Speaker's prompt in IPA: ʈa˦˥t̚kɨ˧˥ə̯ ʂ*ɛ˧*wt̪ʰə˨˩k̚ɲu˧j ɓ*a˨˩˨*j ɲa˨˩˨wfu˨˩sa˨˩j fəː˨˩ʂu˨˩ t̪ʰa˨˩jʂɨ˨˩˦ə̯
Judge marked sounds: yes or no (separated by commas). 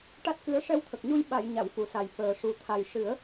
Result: yes, yes